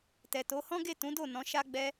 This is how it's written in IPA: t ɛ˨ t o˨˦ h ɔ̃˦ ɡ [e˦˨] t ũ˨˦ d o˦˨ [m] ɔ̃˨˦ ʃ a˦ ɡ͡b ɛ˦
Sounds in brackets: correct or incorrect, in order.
correct, incorrect

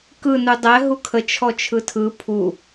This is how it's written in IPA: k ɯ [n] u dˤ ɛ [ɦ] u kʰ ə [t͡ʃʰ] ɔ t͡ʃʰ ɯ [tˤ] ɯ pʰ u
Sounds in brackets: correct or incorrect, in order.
correct, correct, correct, incorrect

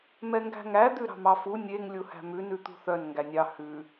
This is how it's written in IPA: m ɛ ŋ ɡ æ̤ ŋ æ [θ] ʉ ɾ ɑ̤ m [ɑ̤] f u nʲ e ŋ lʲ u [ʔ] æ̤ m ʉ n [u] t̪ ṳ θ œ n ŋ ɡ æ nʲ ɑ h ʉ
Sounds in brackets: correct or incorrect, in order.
incorrect, incorrect, incorrect, incorrect

